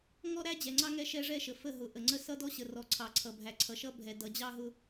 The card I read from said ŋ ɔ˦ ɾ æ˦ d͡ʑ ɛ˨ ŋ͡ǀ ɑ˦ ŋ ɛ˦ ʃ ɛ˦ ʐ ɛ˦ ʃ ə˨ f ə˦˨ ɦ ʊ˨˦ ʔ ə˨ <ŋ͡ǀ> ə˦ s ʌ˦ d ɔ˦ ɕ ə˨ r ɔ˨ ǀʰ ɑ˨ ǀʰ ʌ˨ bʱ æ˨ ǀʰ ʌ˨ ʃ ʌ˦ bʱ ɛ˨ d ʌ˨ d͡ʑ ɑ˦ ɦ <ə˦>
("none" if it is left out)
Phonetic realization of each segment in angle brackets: ŋ͡ǀ, ʊ˦

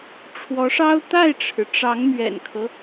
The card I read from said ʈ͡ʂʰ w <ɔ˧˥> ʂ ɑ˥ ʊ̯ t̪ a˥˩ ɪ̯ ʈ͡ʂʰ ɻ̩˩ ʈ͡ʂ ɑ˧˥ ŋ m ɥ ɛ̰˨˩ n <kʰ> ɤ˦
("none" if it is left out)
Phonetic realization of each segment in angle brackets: ɔ˧˥, kʰ

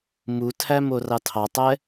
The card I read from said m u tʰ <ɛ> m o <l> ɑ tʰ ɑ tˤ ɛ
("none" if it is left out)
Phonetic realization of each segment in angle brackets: æ, r

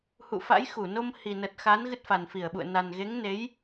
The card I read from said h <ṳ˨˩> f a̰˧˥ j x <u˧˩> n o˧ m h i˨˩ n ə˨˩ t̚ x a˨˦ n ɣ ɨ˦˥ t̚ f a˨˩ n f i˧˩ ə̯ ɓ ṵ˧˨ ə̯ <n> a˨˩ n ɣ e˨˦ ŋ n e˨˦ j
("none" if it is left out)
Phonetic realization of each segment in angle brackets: ṵ˧˨, u˧˩, n

